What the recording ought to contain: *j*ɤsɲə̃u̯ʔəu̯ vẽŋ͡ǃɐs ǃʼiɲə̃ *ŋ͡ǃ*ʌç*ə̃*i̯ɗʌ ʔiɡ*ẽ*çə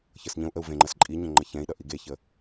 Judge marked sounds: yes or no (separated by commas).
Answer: no, yes, no, no